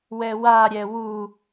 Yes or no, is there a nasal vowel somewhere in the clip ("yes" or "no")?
no